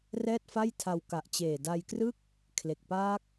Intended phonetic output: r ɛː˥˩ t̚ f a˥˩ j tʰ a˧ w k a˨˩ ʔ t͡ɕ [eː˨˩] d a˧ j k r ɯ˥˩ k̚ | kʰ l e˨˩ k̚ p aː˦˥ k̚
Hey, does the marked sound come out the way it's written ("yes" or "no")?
yes